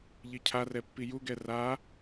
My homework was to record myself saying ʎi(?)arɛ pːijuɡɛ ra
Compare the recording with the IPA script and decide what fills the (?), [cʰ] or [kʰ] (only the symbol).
cʰ